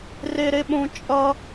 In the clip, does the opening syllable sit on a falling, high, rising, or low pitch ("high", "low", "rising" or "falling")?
high